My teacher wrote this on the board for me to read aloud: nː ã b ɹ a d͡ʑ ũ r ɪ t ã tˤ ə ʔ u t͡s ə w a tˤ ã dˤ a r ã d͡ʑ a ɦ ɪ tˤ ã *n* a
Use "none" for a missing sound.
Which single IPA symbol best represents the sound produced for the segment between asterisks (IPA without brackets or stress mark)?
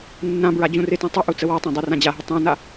n